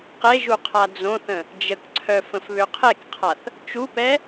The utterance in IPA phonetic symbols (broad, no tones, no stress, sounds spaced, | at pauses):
q e ʒ u qʰ a d͡z õ θ ə̃ | d͡ʒ ə k ǀʰ œ f ə̃ f β ø qʰ e k qʰ a θ | t͡ʃ u p ɛ